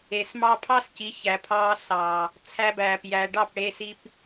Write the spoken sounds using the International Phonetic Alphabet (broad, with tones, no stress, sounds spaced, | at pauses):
e˨ s m ɑ˦ pʰ ɑ˦ s c i˨˦ ç æ˨ pʰ ɑː˧ s ɑː˨ | t͡sʰ æ˧ b æː˨ p j æ˨ ɖ ɑ˦˨ p ɽ eː˧ s i˧ p